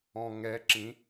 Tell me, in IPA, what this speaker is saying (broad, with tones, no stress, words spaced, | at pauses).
ɔ̃˨ ŋɛ˨˦ ǁĩ˨˦